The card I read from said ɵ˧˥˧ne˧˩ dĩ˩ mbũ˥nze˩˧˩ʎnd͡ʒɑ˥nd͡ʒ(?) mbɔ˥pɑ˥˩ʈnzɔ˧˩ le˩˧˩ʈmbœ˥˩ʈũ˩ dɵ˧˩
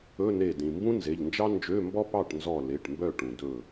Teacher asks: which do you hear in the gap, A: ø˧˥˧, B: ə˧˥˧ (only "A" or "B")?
A